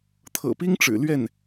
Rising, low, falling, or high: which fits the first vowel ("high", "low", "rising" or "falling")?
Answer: low